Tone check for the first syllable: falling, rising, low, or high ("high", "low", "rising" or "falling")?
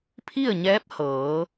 falling